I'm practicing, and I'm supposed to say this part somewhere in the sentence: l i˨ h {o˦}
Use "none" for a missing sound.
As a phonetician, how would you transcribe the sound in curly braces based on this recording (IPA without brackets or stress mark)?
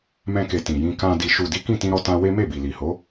o˨˦